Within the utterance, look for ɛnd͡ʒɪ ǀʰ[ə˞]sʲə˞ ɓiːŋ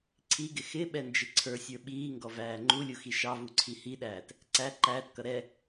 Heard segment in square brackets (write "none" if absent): ə˞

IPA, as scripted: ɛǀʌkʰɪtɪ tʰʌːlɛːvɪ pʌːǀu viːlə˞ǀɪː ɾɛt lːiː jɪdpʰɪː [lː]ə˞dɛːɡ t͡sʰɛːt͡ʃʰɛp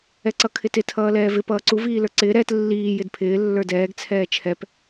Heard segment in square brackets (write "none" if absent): lː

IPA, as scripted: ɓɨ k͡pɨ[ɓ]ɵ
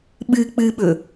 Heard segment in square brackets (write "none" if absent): ɓ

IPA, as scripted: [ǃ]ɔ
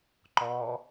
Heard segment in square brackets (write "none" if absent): ǃ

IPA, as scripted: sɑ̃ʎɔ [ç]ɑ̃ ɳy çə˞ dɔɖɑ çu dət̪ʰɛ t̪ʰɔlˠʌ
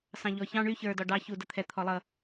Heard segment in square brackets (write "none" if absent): ç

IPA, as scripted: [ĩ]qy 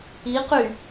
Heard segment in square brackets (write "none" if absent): i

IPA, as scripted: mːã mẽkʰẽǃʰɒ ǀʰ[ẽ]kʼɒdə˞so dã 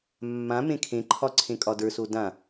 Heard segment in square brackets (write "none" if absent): ẽ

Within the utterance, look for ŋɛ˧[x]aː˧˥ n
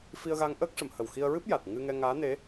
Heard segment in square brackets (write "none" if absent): ŋ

